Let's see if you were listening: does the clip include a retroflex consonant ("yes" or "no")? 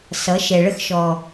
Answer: yes